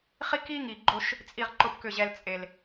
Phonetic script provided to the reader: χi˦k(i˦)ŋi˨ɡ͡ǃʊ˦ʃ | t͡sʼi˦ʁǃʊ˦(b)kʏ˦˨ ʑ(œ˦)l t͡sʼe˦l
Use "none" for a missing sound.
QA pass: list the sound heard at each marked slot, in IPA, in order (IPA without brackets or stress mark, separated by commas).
i˦, p, ɛ˦